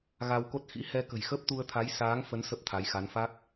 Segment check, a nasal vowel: absent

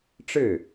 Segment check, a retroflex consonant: present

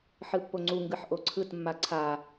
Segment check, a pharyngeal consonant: present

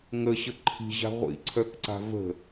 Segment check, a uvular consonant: present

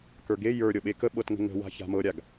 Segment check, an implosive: present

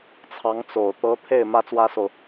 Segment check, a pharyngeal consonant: absent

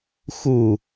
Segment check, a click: absent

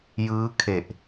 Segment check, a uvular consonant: absent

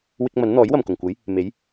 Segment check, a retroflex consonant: absent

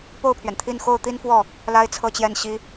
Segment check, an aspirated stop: present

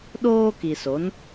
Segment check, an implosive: present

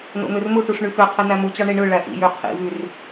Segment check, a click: absent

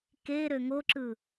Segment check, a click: present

